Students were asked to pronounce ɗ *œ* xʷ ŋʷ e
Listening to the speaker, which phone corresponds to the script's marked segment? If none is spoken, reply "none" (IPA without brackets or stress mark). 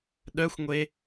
œ